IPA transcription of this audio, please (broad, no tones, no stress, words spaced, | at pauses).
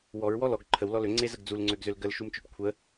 wɔɹwɔ lɔɡ ǃʰəwlɔ løŋ͡ǀezəɡ d͡zulŋ͡ǀøɡzøl ɡəlʃumt͡ʃøɖ kʷʰə